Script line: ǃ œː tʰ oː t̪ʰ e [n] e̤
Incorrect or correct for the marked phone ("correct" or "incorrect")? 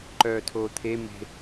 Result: incorrect